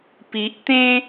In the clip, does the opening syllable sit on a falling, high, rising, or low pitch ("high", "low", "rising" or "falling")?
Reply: low